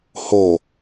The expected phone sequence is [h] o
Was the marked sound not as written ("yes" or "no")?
no